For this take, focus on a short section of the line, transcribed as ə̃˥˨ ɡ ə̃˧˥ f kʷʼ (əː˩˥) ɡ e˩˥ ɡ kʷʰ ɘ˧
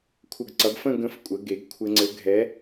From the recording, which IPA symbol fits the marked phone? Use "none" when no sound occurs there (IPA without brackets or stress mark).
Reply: ə˩˥